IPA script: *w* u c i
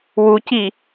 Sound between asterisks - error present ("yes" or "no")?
no